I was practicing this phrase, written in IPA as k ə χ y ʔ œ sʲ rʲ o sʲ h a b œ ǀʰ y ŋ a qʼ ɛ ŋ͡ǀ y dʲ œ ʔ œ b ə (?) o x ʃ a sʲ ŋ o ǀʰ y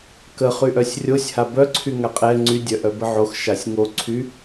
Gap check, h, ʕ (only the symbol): ʕ